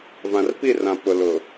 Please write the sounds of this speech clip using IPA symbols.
v ã˨ r p i˦˨ r ã˨ p ʊ˨ l ʊ˨

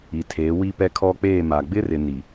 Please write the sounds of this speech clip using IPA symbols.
i˨ tʰ eː˨˦ w i˦ p ɛ˦ kʰ ɔ˦ k͡p eː˦˨ m a˨ ɡ͡b ɪ˦ r ɪ˨ n i˨

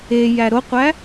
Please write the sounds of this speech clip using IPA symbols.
e j æ ɾ o qʷ æ

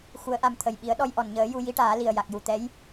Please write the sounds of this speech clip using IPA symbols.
x u˧˥ ə̯ ʔ a˧ m t̪ʰ ə˨˩ j ɓ i˨˩˦ ə̯ ɗ ɔ˧ j ʔ ɔ˨˩˨ n ɲ əː˨˩˦ j u˧ j i˧˥ ʈ aː˨˩˦ l i˨˩ ə̯ j a˨˩ k̚ j u˨˩˨ t̪ ɛ˧˥ j

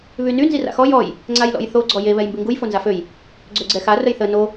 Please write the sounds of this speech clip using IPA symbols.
β y n y n z i r a̰ x ɔ j ɔ j | ŋ͡ǀ a j l ɔ̰ j θ o ɡ͡ǀ ɔ j e β ɛ j m b i ŋ ɡ u j f o n z a f ø j | ɡ͡ǀ ø ɡ͡ǀ ɛ x a r ə j θ ə n o

